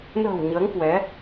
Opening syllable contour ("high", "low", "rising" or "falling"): low